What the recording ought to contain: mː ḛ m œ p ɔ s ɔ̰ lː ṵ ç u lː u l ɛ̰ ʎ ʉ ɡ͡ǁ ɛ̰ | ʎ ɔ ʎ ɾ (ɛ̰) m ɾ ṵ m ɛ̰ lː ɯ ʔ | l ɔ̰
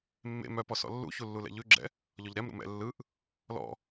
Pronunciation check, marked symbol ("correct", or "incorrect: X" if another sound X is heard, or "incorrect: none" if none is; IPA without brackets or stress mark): incorrect: ɛ